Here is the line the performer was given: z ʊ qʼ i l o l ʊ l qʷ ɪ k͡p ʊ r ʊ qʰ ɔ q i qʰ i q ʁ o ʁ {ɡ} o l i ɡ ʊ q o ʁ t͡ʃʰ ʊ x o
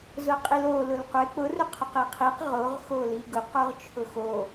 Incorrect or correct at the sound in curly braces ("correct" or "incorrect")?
incorrect